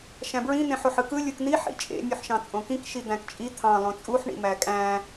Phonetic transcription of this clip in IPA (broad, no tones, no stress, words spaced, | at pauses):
ʃæ̃bɹĩ n̪ẽħoħɯkɯ lʲɯkn̪i ħḭt͡ʃʼḛ mʲuħʃɑ̃t͡sʼõkĩk ʃid̪æ̃kt͡ʃʼi t̪ʰɑ̃ lˠõt͡sʼuħ ɳḭmækʼæ̃